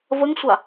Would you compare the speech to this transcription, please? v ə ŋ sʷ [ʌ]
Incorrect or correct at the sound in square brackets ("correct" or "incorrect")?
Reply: incorrect